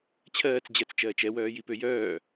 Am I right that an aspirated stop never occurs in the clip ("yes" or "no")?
no